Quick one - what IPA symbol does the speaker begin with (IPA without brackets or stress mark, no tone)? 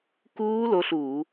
k